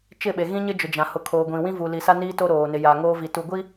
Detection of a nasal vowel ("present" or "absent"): present